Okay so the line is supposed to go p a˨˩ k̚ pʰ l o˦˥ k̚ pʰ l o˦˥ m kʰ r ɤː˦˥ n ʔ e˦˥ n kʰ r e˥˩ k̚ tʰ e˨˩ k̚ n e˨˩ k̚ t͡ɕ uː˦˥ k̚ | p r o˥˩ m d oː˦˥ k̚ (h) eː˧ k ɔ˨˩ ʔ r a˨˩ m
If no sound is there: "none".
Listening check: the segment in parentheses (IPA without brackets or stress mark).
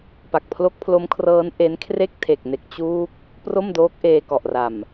ʔ